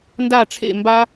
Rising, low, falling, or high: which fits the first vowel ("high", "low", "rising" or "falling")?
falling